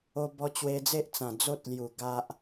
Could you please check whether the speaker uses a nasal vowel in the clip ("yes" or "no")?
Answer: yes